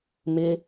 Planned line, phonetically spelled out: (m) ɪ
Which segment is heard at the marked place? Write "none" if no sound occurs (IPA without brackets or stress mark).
m